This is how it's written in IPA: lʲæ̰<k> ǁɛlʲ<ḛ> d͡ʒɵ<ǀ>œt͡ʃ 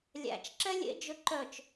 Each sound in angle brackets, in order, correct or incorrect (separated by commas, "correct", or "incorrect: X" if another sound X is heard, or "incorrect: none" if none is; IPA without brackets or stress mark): incorrect: t͡ʃ, correct, incorrect: ǃ